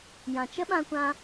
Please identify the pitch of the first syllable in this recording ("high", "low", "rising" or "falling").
low